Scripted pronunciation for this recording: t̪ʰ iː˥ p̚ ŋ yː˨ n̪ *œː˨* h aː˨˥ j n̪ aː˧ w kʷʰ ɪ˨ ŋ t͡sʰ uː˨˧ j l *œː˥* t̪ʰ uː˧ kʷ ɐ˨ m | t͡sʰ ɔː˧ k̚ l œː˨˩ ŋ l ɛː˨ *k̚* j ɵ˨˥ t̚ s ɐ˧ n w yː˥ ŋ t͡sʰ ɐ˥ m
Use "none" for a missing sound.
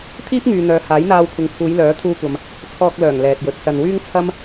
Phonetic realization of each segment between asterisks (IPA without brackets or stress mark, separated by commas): œː˨, œː˨˥, t̚